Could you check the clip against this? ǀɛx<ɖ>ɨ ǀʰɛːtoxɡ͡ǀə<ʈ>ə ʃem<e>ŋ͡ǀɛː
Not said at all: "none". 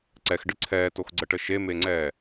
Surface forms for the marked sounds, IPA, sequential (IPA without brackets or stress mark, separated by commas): ɖ, ʈ, e